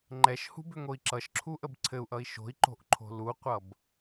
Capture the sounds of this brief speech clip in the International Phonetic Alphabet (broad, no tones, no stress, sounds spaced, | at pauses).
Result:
ŋ͡ǃ ɛ ʃ h ṳ b ʏ ŋ o i̯ ǁ ʌ ʃ ǁʰ u ʔ ə b ǀʰ ɘ u̯ ʔ ʌ i̯ ʃ o̤ i̯ ǃ o̤ ʔ ǃʰ o̤ l u qʷ ʌ b